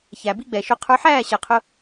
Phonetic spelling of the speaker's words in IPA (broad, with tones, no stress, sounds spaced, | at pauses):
ç æ˨ b i˦ ɡ͡b ɛ˨ ʃ ʊ˧ qʰ ə˞˧ ħ æː˦˨ ɕ ɛ˨ qʰ ʊ˧